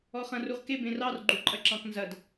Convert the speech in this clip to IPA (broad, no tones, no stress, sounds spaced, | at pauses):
ɔ χ ɐ̃ r u ʁ k e b ẽ r ɑ r ɡ͡ǃ u ǃʼ ɐ ǁ ɑ̃ k n z ɐ d